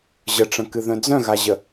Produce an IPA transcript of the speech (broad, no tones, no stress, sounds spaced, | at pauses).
ʑ ə ʈ͡ʂ ə̃ k ɨ ð œ̃ d͡z œ̃ ɣ a ʑ ə